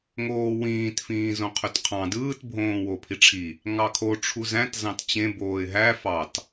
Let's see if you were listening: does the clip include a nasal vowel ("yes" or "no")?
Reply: yes